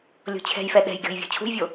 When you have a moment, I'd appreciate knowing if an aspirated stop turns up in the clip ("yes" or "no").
yes